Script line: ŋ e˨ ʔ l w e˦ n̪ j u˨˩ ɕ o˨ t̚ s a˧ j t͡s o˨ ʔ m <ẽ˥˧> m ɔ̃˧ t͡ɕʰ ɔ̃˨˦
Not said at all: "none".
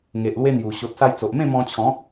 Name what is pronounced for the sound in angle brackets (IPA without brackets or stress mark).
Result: ẽ˥˧